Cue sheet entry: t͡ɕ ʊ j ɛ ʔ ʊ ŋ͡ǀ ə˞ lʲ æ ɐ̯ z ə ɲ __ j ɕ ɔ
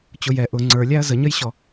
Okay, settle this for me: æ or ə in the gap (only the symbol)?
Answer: ə